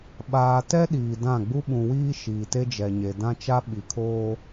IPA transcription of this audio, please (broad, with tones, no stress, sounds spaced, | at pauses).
ɓ aː˨ t ɛ˦ ɗ iː˨ d ã˦˨ ɡ͡b u˦ ɓ ũ˨ w iː˦ ʃ iː˨ t e˦ d͡ʒ ɛ˨ ɲ e˨ d ã˦ t͡ʃ a˦ ɓ i˨ kʰ oː˦